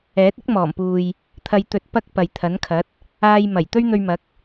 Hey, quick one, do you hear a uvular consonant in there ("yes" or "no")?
no